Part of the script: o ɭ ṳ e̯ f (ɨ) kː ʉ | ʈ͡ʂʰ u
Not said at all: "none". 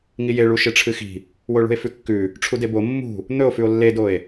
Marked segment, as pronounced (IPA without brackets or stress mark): ʉ